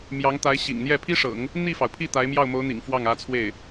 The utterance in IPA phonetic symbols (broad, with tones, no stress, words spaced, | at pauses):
mjɑ˧˥ŋt̪a˧˥ɪ̯ɕḭ˨˩ŋn̪jɛ˥˩ pʰi˥ʂɤ̰˨˩˦ŋ | n̪i˥˩fɑ˩ʊ̯pʰi˥˩ t̪a˧˥ɪ̯mjɑ˥˩ʊ̯mo˧˥ʊ̯n̪ḭ˨˩ŋ fwɑ˥˩ŋä˧˥t͡sʰwe˥˩ɪ̯